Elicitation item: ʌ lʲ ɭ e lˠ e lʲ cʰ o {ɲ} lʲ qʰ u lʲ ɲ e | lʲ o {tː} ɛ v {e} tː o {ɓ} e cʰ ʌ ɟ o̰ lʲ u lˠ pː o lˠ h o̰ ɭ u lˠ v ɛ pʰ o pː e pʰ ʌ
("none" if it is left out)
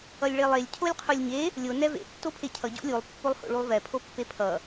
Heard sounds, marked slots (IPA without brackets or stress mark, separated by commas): none, n, ḛ, pʰ